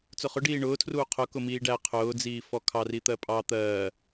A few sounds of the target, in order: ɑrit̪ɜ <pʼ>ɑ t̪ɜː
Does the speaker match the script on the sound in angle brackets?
yes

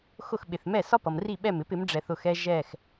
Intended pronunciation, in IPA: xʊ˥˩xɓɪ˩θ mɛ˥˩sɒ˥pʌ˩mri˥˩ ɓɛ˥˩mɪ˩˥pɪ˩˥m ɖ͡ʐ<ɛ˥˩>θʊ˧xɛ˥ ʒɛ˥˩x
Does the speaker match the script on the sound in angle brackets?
no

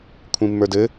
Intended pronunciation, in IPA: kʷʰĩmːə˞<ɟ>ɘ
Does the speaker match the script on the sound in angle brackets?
no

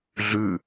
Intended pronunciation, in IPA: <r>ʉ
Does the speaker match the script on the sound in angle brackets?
no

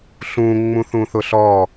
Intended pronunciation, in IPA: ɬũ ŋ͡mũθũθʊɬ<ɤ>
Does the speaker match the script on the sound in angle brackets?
no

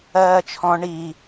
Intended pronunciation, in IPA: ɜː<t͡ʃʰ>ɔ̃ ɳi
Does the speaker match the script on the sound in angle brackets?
yes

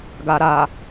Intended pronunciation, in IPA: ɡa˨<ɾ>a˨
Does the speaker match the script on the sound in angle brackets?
yes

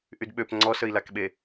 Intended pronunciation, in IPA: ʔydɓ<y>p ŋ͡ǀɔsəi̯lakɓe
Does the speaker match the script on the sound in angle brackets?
no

